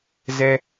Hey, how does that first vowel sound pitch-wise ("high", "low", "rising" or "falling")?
high